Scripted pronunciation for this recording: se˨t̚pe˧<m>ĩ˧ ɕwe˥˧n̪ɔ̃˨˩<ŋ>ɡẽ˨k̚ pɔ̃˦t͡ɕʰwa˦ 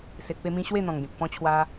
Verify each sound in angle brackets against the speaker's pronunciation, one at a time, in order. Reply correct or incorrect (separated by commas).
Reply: correct, correct